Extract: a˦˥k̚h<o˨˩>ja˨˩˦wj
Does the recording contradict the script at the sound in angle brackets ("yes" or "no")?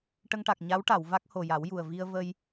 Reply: no